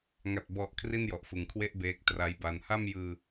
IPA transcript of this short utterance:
ŋ a˨˩ t̚ b ɔ˨˩ ʔ kʰ r i˥˩ n j ɔ˨˩ ʔ f ɯ˨˩ ŋ kʰ w e˥˩ ʔ b eː˦˥ k̚ t r a˦˥ j b a˧ n h a˥˩ m j ɯː˧

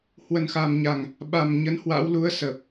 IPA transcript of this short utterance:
h w ə˨˩ n x a˨˩ m ɲ a˨˩ ŋ | ɓ a˨˩ m ɲ ə˨˦ n h w a̰˧˥ w l u˨˦ ə̯ s əː˨˩ p̚

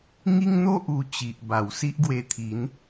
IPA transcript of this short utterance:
ŋ i˦ ŋ n̪ o˦ ʔ u˧ t͡ɕ i˨ ʔ b a˨˩ w s i˦ ʔ ɡ w e˧ t̪ʰ i˨˦ n

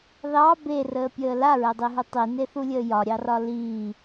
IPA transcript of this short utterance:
ð ɑ b e r əː pʲ əː l a ɹ ɛ dˤ i ɦ u tˤ i n e θ u lʲ əː j ɒ ɾʲ ɑ r ɒ l iː

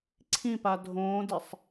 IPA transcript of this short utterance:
ǀʰ ĩ p a dʱ õː d ɪ sˤ

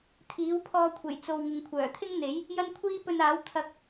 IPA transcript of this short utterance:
t̪ʰ iː˨˥ w pʰ ɔː˧ kʷʰ e˨˩ j t͡s o˨ w ŋ ɪ˨ ŋ kʷʰ œː˨˩ t̪ʰ ɪ˥ ŋ n̪ e˨˥ j | j ɐ˥ n kʷʰ iː˥ p ɵ˧ n aː˨˥ w t̪ʰ ɐ˧ k̚

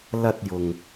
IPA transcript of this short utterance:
l ɐ˧ t̚ j ʊ˨ ŋ

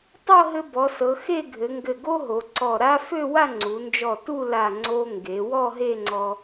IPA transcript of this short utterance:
tˤ ɤ˥˧ ɦ ɘ˧ b ɔ˩˧ s ɤ˩˧ x e˥˧ ɡʱ ɘ˩˧ ŋ ɡ ɘ˧˩ ɡ o˥ ɦ o˩˧ ǀ ɔ˧˩ ɾ a˥ f ø˥˧ w a˥˧ ŋ͡ǀ u˩˧ n d͡ʒ ɔ˧˩ t u˥˧ l a˧˩ ŋ͡ǀ o˧ ŋ ɡ e˩˧ w ɔ˥˧ ɦ e˥˧ ŋ͡ǀ ɔ˧

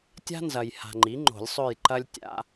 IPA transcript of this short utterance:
tʲ a̤˥ n z ɐ˨ j h a̤˨ ŋ͡ǃ i˩˥ ŋ͡ǃ o̤˨˩˦ lʲ sˤ ø˦˨ j ǃ ɐ˥ lʲ tʲ a̰˧˥

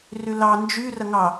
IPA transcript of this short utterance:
r y l ɑ n d͡ʒ y r ɐ ŋ ɑ

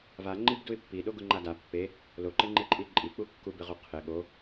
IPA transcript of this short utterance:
v a ŋ͡ǃ i b d u ɪ̯ pː i ɗ o ɡ ʊ ŋ͡ǃ a d a pː e | l o ǃ ɪ ŋ͡ǃ e ǃʼ i ǃʼ i k͡p u kː u b ɪ ʁ u qʰ ɪ ɠ o

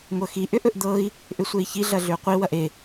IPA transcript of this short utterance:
ŋʷ ɤ x i ʔ ʏ ʔ ɵ ʔ d̪ ɤ i̯ | ʔ ʏ sʷ e i̯ ç i ɮ ɐ ɮ ʏ u̯ qʷ i w ɐ ʔ e

